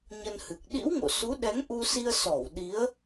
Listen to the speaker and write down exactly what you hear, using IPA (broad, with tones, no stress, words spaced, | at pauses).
ɲə˧nhɨ˨˩k̚ ɗḭ˧˥wŋo̰˧˨ su˨˦ɗɛ˨˦ŋʔu˧si˧ə̯ sɔ˧˩w ɗi˨˦ə̯